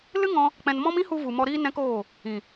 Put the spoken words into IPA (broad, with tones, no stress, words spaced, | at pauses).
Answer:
lɨ˦ŋɔ̃˧ | k͡pɛ̃˧n mɔ̃˦m ĩ˦hu˧ vu˨mɔ˧ɾiː˦ nɛ̃˦koː˦˨ | ĩ˨